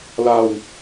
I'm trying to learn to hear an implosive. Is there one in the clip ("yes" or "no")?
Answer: no